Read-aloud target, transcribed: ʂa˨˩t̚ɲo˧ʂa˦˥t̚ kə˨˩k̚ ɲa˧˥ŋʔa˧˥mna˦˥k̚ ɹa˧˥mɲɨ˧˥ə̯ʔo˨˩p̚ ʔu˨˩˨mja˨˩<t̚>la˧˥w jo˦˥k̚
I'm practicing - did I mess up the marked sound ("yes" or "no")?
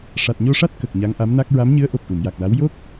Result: yes